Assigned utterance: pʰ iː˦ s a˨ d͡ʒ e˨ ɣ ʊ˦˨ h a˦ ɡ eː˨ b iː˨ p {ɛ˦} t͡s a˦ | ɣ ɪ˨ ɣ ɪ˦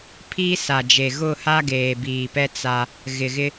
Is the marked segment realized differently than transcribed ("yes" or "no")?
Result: no